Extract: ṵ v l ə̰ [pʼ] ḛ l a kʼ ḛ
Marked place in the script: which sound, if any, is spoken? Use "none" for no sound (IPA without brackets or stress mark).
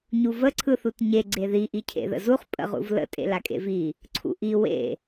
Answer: tʼ